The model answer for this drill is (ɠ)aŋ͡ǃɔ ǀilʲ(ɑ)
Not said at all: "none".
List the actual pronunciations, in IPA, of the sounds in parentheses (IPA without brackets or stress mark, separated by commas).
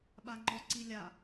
ɓ, a